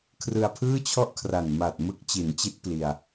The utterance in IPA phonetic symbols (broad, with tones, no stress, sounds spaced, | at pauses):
kʰ r ɯ˧ a̯ pʰ ɯː˥˩ t͡ɕʰ ɔ˥˩ ʔ kʰ r a˨˩ n m a˨˩ t̚ m ɯ˦˥ k̚ t͡ɕ i˩˦ n t͡ɕ i˦˥ t̚ p l i˧ a̯